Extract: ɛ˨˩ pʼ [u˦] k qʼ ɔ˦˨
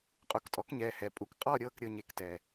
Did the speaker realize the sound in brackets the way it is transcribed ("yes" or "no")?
yes